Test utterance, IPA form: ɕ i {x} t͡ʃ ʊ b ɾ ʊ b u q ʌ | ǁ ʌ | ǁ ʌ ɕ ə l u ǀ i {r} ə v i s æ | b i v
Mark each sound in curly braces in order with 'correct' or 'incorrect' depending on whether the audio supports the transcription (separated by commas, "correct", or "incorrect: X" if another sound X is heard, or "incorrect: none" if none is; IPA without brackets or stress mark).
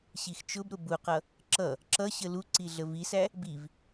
correct, incorrect: ɮ